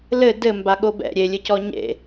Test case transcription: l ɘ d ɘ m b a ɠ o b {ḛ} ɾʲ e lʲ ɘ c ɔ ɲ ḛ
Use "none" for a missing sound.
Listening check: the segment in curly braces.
ɛ̰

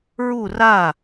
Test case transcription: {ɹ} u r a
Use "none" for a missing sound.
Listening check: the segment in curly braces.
ɹ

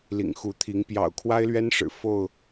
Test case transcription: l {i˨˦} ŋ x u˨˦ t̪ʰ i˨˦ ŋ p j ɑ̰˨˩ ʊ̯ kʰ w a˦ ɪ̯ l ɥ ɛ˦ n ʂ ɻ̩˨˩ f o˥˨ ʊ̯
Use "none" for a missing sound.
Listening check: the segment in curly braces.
ḭ˨˩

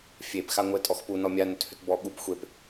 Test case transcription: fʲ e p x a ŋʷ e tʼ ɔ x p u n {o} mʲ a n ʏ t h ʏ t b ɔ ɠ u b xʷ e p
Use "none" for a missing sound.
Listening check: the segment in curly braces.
ɔ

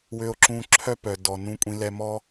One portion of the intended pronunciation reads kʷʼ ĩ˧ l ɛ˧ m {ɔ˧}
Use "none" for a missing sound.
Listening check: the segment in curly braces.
ɔ˥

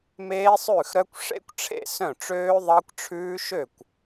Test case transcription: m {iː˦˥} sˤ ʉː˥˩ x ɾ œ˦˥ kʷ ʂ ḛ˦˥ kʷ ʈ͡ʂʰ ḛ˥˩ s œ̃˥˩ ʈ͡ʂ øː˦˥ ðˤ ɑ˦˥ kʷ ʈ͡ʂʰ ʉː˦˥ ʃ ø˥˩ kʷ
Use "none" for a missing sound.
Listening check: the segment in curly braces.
eː˦˥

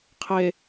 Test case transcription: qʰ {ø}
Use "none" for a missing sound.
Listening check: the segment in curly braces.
e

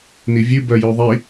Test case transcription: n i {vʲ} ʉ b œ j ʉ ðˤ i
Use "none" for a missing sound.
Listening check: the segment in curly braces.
vʲ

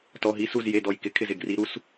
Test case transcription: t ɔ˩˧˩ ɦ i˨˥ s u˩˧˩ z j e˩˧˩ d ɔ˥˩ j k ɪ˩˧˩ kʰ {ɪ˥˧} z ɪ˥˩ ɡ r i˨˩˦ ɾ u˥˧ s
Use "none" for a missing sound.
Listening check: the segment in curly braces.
ɪ˥˩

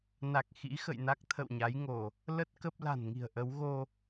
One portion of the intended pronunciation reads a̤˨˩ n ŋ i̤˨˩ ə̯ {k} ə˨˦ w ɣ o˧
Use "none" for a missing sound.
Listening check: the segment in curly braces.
ʔ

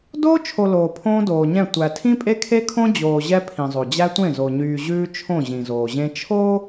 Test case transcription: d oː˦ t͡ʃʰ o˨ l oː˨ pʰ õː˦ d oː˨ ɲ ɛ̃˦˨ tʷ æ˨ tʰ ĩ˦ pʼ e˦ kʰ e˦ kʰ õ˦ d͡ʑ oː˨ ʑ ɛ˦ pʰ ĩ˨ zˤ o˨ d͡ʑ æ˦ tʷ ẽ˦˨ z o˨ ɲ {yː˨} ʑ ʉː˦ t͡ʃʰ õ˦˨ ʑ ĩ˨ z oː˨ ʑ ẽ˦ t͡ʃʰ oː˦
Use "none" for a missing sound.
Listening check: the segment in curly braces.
yː˨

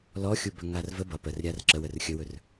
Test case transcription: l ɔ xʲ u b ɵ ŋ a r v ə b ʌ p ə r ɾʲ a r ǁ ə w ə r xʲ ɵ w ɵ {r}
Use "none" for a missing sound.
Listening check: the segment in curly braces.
r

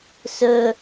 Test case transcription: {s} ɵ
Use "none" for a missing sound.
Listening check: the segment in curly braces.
s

